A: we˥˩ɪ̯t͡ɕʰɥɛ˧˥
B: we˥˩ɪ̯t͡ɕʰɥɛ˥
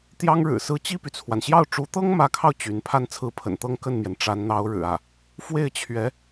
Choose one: A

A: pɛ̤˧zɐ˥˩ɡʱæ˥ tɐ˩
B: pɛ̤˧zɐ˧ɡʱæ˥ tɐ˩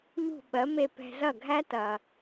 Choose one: A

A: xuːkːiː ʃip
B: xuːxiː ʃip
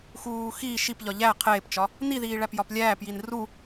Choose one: B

